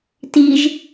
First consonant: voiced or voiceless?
voiceless